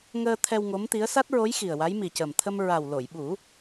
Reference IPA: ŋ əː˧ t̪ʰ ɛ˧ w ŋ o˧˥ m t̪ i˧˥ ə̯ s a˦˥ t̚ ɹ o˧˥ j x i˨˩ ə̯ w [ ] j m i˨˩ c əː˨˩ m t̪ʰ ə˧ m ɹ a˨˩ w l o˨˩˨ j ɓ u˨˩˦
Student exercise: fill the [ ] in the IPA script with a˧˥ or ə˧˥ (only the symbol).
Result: a˧˥